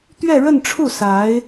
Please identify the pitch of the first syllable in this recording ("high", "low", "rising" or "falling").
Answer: falling